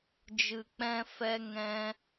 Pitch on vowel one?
low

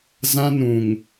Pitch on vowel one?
high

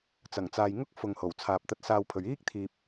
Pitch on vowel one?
low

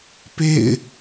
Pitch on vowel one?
falling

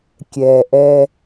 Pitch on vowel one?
low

